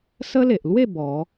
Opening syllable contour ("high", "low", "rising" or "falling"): high